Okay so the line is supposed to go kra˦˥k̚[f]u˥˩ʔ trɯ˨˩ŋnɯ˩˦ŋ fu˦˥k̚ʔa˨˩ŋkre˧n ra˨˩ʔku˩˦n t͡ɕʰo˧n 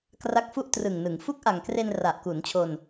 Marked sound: correct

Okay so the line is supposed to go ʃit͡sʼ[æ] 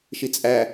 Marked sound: correct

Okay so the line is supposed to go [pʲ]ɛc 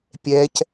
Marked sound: correct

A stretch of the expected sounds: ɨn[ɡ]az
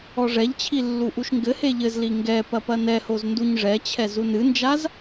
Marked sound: incorrect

